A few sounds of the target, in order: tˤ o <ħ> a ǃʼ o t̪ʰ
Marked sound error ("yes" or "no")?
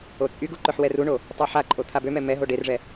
no